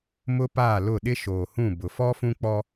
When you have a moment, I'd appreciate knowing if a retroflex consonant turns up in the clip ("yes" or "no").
no